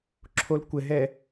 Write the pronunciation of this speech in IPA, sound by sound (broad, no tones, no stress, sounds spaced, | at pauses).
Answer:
ǁʰ o l kʷ ɘ ɦ ɛ